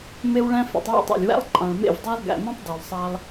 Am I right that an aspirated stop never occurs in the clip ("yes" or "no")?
yes